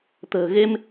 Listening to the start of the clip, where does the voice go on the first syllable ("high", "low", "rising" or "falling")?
low